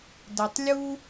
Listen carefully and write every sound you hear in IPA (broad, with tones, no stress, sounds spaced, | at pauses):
d ə˨ tˤ lʲ u˧